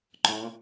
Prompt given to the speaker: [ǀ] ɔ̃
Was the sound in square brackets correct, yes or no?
no